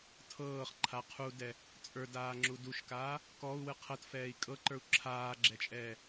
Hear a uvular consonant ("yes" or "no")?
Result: yes